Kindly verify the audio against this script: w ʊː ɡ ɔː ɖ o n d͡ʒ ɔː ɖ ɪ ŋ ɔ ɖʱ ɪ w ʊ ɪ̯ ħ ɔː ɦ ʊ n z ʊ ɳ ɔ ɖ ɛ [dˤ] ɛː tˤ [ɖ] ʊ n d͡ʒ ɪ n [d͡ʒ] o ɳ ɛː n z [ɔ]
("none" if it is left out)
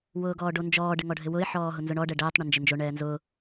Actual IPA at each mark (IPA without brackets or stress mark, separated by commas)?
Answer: ɖ, ɳ, d͡ʒ, ʊ